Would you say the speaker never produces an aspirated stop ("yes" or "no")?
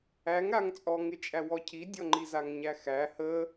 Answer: no